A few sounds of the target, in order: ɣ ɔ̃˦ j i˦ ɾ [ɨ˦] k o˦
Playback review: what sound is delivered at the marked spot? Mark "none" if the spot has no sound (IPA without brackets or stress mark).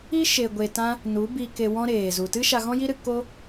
ɨ˧